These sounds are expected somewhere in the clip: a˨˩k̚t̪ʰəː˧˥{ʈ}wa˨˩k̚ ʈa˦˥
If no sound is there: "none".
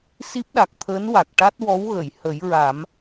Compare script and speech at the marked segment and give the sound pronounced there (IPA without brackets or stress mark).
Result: n